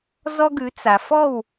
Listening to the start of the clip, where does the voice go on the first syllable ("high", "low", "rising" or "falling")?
high